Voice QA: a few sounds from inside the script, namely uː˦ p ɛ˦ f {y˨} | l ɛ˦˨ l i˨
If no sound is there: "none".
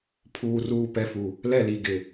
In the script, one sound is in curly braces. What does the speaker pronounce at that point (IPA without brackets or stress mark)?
u˨